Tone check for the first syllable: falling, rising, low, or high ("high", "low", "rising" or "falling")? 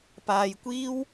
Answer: low